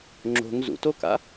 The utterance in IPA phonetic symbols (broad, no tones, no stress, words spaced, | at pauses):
ŋ͡ǁo̤ŋ zṵtoka̰